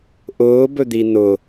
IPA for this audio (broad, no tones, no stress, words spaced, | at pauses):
ʔʊːbɵd̪i nʊ